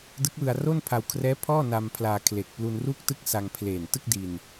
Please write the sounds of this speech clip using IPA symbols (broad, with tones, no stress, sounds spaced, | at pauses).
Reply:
d ɯ˦˥ k̚ w ɯ˧ a̯ r o˥˩ n pʰ a˧ w kʰ r ɛː˦˥ pʰ ɔː˥˩ n a˧ m pʰ l aː˧ kʰ l e˨˩ k̚ p l u˧ n r uː˥˩ k̚ t ɯ˥˩ k̚ s a˧ ŋ pʰ l eː˨˩ n t ɯ˥˩ k̚ d i˧ n